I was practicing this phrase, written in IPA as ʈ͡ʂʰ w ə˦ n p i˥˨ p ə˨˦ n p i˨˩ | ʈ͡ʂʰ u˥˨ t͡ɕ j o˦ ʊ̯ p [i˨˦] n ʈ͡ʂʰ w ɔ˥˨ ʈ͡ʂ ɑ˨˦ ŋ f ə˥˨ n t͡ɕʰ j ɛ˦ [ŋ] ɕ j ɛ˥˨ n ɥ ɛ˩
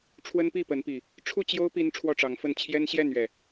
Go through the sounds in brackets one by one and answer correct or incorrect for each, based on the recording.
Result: incorrect, incorrect

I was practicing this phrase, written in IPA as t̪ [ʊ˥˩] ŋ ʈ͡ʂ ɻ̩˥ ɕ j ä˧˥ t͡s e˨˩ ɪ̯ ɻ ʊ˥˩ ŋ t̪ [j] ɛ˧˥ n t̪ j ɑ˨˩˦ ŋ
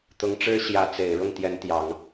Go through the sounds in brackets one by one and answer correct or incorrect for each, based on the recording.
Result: incorrect, correct

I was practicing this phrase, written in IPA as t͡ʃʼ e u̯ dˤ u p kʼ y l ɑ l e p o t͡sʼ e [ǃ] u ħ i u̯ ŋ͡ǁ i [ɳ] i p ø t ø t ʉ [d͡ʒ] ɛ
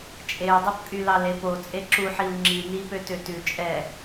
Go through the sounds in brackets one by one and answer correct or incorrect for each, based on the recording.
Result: incorrect, incorrect, incorrect

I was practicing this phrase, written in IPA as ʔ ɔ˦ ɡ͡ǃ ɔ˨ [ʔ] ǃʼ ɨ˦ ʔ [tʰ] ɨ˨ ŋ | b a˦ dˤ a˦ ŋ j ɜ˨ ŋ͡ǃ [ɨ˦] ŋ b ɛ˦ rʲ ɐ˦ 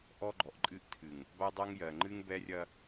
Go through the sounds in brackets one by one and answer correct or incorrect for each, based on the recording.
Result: correct, correct, correct

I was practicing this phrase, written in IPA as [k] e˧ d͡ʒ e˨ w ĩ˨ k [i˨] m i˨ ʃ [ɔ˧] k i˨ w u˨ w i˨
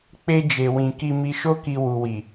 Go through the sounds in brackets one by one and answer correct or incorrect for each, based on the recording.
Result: incorrect, correct, incorrect

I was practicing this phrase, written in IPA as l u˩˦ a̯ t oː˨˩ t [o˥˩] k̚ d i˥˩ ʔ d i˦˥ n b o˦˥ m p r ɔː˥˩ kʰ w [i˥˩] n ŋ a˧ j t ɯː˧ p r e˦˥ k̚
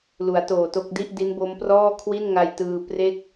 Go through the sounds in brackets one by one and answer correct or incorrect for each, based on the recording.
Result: correct, correct

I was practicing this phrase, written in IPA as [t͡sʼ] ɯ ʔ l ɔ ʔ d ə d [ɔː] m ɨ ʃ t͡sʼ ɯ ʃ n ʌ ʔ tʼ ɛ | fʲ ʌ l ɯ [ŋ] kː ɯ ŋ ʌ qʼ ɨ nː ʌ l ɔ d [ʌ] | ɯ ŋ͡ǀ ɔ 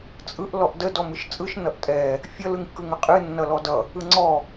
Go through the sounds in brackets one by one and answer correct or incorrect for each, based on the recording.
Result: correct, incorrect, correct, correct

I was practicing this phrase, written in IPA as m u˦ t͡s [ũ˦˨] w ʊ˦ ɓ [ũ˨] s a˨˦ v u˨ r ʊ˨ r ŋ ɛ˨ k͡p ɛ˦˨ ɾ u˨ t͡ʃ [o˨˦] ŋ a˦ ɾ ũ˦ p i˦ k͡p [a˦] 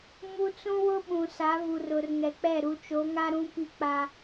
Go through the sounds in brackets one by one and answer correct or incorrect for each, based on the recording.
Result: incorrect, correct, correct, correct

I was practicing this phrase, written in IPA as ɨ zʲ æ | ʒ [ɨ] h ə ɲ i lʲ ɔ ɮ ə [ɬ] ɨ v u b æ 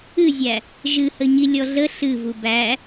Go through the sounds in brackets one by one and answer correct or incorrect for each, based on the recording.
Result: correct, correct

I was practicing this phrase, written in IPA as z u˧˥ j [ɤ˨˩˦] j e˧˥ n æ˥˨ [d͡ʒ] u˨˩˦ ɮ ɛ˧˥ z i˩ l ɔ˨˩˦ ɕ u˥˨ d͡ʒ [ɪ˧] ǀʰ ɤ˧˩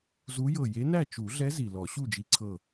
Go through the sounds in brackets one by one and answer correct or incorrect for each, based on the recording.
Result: incorrect, incorrect, incorrect

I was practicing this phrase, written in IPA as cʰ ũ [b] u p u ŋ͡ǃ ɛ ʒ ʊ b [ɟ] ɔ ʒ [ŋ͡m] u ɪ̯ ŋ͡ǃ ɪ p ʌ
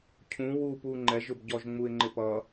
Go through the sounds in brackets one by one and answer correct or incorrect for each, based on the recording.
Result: incorrect, correct, correct

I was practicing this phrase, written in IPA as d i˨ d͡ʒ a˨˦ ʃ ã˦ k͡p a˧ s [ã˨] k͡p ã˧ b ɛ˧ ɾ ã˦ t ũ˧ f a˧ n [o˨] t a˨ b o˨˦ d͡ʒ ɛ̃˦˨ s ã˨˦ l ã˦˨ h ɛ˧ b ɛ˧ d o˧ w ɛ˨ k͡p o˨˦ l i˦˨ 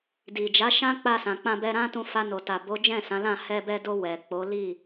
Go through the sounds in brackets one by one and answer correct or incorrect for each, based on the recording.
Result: correct, correct

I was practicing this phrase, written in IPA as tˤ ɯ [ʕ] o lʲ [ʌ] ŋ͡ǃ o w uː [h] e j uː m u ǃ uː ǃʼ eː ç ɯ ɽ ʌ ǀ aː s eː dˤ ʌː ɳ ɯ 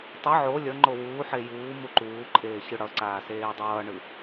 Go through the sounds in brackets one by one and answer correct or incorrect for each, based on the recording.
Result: correct, correct, incorrect

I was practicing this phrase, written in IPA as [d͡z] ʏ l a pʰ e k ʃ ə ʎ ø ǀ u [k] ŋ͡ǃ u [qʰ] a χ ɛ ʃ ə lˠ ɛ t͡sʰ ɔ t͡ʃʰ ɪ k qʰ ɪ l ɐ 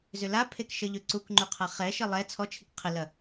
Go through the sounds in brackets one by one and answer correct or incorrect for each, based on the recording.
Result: incorrect, correct, correct

